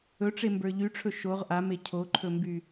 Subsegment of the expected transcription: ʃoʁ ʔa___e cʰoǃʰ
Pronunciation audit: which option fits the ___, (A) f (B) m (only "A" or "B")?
B